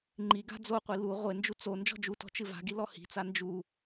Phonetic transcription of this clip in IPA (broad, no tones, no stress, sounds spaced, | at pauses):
ŋ͡ǃ i ɡ a̤ d͡z o qʷ i l u ʁʷ e n d͡ʒ u t͡s o n d͡ʒ ɔ̤ d͡ʒ u t ɔ̤ t͡ʃ ɨ v a̤ ɡ i l ɔ h i̤ t͡s a n d͡ʒ u